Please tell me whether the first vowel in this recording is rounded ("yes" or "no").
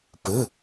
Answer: no